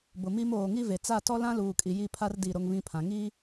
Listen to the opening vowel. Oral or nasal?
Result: oral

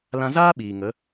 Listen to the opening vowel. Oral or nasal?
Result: nasal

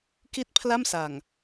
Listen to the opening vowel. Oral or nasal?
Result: oral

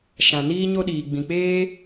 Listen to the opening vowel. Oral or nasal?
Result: nasal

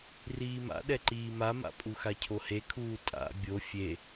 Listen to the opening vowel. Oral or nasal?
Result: oral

